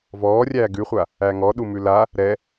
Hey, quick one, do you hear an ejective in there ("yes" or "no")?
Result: no